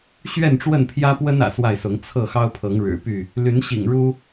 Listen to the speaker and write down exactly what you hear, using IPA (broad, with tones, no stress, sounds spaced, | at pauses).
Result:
ɕ ɥ ɛ˥˨ n ʈ͡ʂ w ə˥˨ n pʰ j ä˦ p w ə˦ n ä̰˨˩ s w a˥˨ ɪ̯ s ʊ˨˦ ŋ t͡sʰ ɤ˥˨ x ɑ˦ ʊ̯ pʰ ɤ˨˦ ŋ ɻ ɻ̩˨˩ p y˥˨ | l y˨˦ n ɕ ḭ˨˩ ŋ ɻ u˦